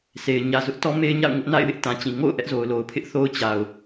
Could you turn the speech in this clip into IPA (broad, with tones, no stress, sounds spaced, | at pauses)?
s e˨ ɪ̯ ɲ ä˨ z ʊ˦ ʔ t ɔ˦ m e˦ ɪ̯ ɲ a̰˦˨ ʊ̯ ŋ ʊ˦ ʔ n a̰˦˨ ɪ̯ w ɪ˦ ʔ t ã˨ t͡ɕ ĩ˨ ŋ o̰˦˨ ʊ̯ ʔ ɛ˦ ʔ z o˨ ʊ̯ l o˨ ʊ̯ pʰ ɪ˦ ʔ θ o˦ ʊ̯ t͡ɕ a˨ ʊ̯